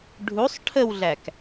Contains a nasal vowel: no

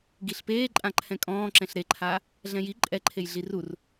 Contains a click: yes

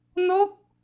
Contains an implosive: no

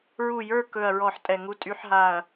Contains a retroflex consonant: no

